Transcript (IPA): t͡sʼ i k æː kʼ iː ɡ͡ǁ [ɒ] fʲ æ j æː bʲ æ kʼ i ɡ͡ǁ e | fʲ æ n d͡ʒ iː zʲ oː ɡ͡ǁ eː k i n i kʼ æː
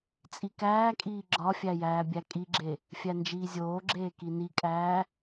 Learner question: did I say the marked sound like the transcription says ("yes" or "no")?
yes